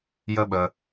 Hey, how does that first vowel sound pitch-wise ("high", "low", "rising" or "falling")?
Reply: high